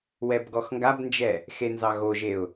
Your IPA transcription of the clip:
w ɛ b ɡ ɔ x ŋ ɡ a b n d͡ʒ ɛ | x e n z ɑ ɣ o ʒ e ʊ̯

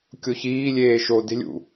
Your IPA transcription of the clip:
kʲ o ç iː lʲ eː ʃ o d e̤ lʲ ṵ

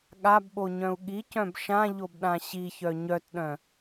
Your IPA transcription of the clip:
ɠ a b ɓ o ɲ œ̃ u̯ ɠ i c œ̃ b ʃ ã ʎ o b ɗ ã ɕ i ç œ ɲ œ t ɗ œ̃

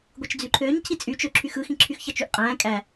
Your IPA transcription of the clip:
ɡʷ ɯ t͡ʃ d͡z y ǃʰ øː ɲ cʰ i t͡sʼ y t͡ʃ ø ǁʰ y x ɯ x ĩ ǁʰ y x ç ɑ t͡ʃ y ʔ qʼ æ̃ː kʼ æ

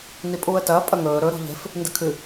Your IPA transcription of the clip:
n i pʼ uː ə̯ t ɐː pʼ ɐ ŋ ɵː ɾ ɵ ɾ o̤ ʎ e̤ f | n d ɨ kʰ ɨ

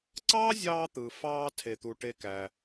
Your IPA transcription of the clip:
ǀ ɑ˦ zʲ ɑː˧ t̪ ɯ˨ f ɑː˧ tʰ e˨ t̪ u˨ ʈ e˦ k æ˧

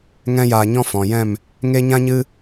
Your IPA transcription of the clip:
ŋ ɛ̃˦ j aː˧ ɲ ɔ̃˦ f ɔ̃˨ j ɛ̃˦˨ m | ŋ e˦ ɲ ã˦ ɲ ɨ˦

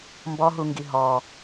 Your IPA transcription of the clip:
m b ɔ ɦ u ŋ ɡ i ɦ ɔ

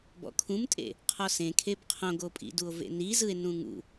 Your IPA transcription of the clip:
b ɔ̰ kʰ ũ m tʼ ḛ | qʰ ɔ s ẽ kʰ e b qʰ õ ɡ o pʼ ḭ d u o̯ v ḛ n i z ɯ e̯ n ũ ŋ ṵ

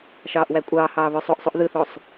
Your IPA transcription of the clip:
ʃ ɑː ʔ w æ kʷʼ ɑː h ɑː β ø sˤ o ʔ sˤ u ʔ ð ɯ θ o sˤ

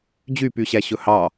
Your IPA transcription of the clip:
d͡ʑ y p y ɕ æ ɕ ɵ h ɑ

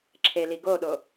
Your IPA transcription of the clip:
ǁʰ e l i ɡ o ɗ o

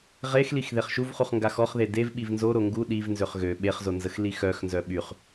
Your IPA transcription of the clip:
ʁ e x l i x ð e χ ʃ u v χ u χ ŋ ɡ a x ɔ χ ð e d e v ɓ i v n z o ɾ o ŋ ɡ u ɗ i v n z ø χ ɣ ø ɓ e χ z o n z ə x l i x œ x n z œ ɓ y χ

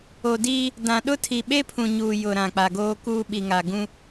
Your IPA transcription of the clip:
o˨ d iː˦ | d ã˨ ɗ ʊ˦ tʰ i˨ ɓ e˦ pʰ ũ˨ ɲ uː˨ j ʊ˨ ɾ ã˨ k͡p a˨ ɡ oː˦ k uː˦ ɓ i˨ ŋ a˨ ɡ ũ˦

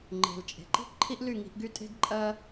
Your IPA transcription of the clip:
ŋ͡ǃ e̤˨ l t͡ʃʼ e̤˨ ǃ i̤˦ ǃʰ i˦ ʔ l y˦˨ ŋ i̤˧ ʔ ɡ y˦ tʼ e̤˦ ɡ ǃʼ ɜ˦

